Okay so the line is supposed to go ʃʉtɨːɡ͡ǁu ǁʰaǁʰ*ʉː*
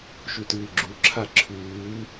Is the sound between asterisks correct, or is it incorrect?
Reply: correct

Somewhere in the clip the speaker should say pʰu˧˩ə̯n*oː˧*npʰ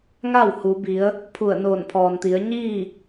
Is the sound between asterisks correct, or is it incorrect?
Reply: incorrect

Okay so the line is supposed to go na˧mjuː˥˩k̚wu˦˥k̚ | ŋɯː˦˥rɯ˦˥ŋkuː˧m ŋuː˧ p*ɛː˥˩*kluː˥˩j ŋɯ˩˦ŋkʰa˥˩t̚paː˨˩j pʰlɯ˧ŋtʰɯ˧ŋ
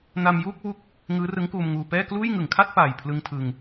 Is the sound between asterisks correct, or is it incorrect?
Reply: correct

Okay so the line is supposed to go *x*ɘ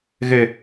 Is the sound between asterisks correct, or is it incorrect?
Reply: incorrect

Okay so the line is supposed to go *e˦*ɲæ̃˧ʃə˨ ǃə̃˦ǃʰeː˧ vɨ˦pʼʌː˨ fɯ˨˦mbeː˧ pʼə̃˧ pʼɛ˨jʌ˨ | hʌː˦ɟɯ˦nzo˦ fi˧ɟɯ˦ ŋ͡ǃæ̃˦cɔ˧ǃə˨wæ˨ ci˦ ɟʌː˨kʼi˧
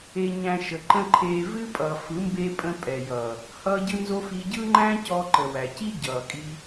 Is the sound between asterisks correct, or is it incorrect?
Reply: incorrect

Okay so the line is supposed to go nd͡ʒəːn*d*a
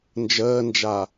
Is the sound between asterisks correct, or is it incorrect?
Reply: incorrect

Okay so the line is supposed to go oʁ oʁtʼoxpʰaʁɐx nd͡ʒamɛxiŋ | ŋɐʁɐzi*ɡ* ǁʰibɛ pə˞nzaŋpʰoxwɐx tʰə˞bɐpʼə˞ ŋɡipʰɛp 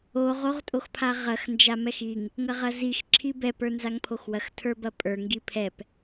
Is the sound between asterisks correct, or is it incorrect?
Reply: incorrect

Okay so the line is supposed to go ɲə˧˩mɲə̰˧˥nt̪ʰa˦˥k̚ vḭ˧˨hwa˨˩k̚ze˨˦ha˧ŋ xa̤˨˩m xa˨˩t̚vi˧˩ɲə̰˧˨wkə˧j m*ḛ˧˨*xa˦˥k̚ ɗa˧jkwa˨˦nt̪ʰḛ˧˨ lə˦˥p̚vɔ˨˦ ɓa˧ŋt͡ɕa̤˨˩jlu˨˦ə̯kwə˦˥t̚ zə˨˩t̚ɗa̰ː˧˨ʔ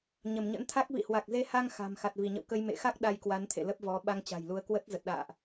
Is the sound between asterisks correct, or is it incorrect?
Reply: correct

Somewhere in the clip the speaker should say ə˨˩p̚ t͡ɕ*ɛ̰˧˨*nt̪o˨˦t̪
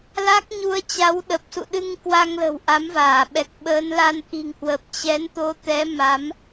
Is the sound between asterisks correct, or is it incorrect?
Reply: incorrect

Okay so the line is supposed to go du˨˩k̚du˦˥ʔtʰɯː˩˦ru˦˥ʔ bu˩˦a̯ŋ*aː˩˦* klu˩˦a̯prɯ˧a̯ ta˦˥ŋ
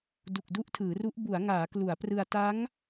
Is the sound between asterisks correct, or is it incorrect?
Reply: correct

